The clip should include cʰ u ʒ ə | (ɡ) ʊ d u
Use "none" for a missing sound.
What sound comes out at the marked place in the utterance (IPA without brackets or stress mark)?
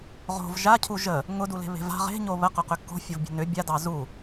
ŋ